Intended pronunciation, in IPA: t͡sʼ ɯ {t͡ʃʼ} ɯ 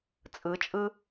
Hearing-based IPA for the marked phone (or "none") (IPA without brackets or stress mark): t͡ʃʼ